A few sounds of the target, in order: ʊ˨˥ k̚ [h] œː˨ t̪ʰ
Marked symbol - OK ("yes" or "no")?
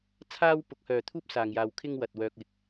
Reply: yes